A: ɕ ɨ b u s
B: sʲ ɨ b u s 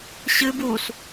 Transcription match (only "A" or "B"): A